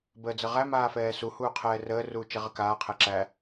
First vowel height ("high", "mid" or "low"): mid